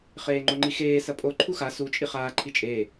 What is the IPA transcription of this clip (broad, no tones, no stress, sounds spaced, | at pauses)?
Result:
χ eː ŋ͡ǃ o ŋ͡ǃ i x eː s ɐ pʼ o ǃʰ u x a s u t͡ʃʼ i χ aː ǃʰ i t͡ʃʼ eː